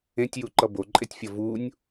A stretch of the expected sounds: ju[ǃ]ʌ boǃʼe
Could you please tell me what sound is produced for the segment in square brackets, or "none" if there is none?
ǃ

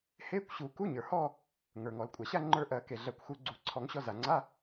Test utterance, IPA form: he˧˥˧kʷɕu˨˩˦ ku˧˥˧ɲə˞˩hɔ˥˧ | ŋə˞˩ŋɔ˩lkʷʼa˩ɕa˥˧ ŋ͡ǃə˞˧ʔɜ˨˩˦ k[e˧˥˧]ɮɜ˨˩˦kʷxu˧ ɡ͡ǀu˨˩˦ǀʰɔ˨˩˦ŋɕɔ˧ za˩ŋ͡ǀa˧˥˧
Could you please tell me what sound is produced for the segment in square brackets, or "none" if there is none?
e˩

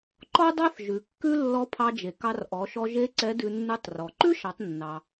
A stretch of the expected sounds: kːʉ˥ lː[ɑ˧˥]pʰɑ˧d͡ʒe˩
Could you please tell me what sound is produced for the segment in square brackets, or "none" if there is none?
ɔ˧˥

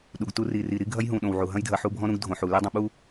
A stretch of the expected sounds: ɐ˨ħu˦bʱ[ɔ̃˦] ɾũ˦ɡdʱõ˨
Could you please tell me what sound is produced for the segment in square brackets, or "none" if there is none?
ɔ̃˦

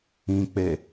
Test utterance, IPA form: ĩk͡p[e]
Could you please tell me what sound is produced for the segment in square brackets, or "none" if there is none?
e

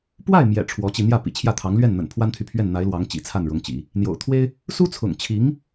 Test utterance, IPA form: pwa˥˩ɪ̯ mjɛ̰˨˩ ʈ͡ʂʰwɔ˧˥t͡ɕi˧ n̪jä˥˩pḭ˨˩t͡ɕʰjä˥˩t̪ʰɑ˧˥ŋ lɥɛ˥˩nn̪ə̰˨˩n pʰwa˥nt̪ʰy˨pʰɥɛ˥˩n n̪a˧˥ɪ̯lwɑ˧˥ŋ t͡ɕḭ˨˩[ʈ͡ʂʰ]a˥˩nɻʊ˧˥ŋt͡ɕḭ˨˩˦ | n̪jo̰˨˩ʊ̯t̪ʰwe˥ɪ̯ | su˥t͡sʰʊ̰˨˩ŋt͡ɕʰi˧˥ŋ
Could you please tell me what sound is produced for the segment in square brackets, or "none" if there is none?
t͡sʰ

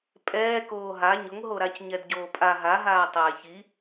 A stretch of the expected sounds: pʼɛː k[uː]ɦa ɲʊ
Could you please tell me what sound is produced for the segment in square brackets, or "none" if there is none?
oː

